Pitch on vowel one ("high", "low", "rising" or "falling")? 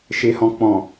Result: low